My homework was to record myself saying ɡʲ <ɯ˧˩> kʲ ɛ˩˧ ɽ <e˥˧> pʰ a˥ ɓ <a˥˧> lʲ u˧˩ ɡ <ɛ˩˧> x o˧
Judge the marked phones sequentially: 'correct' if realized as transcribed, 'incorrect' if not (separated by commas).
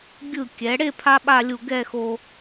correct, correct, correct, incorrect